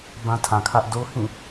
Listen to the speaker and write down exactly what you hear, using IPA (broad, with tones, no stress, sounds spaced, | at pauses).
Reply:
b ã˦ tʰ ã˨ kʰ ä˦ ʔ d o˦ h ĩ˦˨